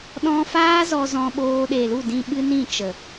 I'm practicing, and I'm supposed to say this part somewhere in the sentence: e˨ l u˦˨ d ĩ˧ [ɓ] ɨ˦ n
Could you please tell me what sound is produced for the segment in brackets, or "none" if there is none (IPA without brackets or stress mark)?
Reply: ɓ